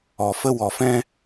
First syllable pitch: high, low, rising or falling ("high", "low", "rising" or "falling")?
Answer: low